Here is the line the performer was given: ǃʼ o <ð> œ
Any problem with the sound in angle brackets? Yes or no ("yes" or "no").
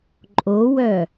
yes